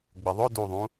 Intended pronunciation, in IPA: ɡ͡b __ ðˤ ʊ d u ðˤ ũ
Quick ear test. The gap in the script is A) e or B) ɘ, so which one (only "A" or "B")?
B